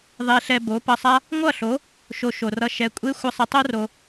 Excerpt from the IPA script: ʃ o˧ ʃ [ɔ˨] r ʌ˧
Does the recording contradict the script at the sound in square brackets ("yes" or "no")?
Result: yes